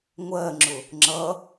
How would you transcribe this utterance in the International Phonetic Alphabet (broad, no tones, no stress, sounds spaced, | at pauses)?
ŋʷ ɜ ŋ͡ǁ ʊ | ŋ͡ǁ ʌ